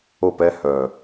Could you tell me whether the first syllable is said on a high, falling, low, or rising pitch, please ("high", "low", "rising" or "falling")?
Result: falling